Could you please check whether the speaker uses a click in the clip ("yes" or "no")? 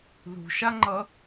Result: yes